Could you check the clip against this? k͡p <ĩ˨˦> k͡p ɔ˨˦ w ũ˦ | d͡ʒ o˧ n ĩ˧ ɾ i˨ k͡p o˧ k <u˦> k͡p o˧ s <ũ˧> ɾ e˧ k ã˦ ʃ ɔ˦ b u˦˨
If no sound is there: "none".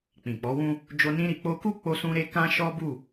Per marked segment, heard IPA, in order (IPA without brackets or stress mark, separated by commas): ĩ˨, u˦, ũ˧